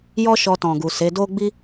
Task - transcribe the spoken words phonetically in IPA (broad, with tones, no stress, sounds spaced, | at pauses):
j ɔ˦ ʃ ɔ˧ t ɔ̃˨ ɡ u˨ s e˨˦ d o˦ ɡ͡b i˦